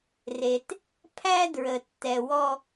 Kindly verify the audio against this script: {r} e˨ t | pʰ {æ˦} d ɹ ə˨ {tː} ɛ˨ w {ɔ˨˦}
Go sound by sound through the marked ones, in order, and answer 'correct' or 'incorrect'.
correct, correct, correct, incorrect

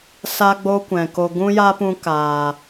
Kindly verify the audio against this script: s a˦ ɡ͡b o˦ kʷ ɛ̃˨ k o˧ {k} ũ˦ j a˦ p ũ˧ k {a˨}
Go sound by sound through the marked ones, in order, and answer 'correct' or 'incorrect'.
incorrect, incorrect

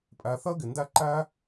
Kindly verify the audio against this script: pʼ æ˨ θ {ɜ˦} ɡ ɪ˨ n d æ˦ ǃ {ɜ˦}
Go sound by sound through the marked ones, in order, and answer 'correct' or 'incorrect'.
correct, incorrect

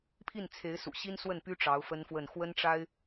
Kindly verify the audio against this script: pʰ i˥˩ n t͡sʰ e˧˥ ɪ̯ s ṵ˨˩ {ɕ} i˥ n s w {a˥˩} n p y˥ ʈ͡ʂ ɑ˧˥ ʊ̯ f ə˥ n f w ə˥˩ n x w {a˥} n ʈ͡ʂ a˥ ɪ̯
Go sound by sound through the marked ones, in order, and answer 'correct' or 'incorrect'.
correct, incorrect, incorrect

